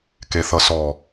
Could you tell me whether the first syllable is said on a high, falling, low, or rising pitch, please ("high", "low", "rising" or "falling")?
low